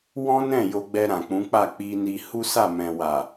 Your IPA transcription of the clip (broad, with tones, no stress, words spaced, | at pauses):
wɔ̃˦nɛ̃˦˨ jo˧ɡ͡bɛ˧ ɾã˨k͡pũ˨˦k͡pa˦˨ k͡pi˧ni˧ hu˦sa˦˨ mɛ̃˨wa˨